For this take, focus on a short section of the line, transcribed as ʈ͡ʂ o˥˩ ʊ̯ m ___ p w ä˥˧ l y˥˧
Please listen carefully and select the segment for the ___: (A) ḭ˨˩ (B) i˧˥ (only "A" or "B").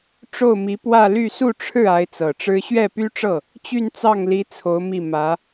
B